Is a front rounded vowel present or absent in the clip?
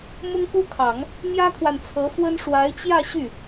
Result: present